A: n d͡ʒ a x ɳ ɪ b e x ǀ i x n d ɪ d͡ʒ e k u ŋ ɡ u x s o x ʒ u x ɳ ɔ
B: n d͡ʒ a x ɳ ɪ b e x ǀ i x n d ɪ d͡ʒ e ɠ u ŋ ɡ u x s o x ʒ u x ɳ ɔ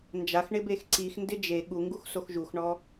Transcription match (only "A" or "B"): B